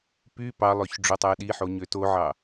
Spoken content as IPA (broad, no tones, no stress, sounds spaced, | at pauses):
p y p ɑ lˠ ø ç ɖ͡ʐ o tˤ æ ɗ i ħ o ɲ ø t o ʕ ɑ